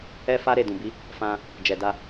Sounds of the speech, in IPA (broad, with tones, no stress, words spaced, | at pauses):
ɛ˦fa˦ ɾe˦˨dũ˨bi˨˦ | fã˧ | d͡ʒɛ˨da˧